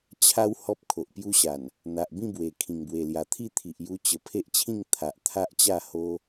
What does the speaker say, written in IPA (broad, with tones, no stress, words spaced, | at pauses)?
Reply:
t͡ɕʰa˦w hɔ˦p̚kʰo˨ʔpju˦ɕa˨˩n | n̪a˨ʔ bĩ˥˧bwe˨˩ kʰĩ˨˩ŋbwe˨˩lja˨˩ t̪ʰi˥˧t̪ʰi˨ʔju˧ t͡ɕə˨˩ pʰe˦ʔt͡ɕʰĩ˥˧ŋ t̪ʰa˨ʔ t̪ʰa˦ʔt͡ɕa˥˧ho˦